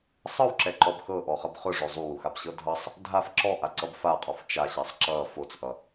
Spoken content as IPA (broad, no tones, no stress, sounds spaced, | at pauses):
sˤ ɤ w ǁ ɛ ǃ ɔ b x ɤ ʔ ɔ χ ʌ b χ ʊ ʐ ʊ zˤ u w u x a b ɕ ɤ dʱ ʌ sˤ | dʱ a f ǁ ɔ ʔ a ǀ ʌ b f a qʼ ɔ f t͡ʃ a ɕ a sˤ ǁ ʌ f o t͡s ʔ ʌ